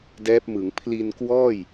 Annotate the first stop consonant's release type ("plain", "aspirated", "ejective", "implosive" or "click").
plain